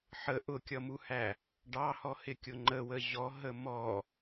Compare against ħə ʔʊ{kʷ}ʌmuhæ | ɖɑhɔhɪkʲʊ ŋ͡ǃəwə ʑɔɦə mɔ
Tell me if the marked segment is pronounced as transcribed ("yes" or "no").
no